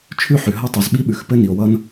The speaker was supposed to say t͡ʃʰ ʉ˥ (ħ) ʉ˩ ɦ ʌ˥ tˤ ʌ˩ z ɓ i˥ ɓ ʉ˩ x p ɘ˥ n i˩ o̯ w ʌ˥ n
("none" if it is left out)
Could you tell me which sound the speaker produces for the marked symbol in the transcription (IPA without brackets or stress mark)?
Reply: ħ